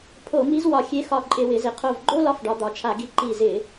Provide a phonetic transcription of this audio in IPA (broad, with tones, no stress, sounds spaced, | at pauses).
pʰ o˧˩˧ m i˧˥ z w ɒ˧˩˧ xʲ e˧˥ x ɒ˧˩ ǃʼ ɪ˧˩˧ w ɪ˩˧ z ɪ˩˧ qʰ o˧˩ v ɡ͡ǃ o˥ l ɒ˧˥ f ɖ ɒ˩˧ d̪ ɒ˩˧ t͡ʃʰ a˧˩˧ ɡ i˧˩ ǃ i˧˩ z ɪ˧˩˧